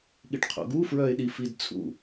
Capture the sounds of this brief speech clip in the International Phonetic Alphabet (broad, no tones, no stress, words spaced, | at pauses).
ɠiʈqʰo̰ɡu fɹœɪ̯ɗifidt͡sʰṵ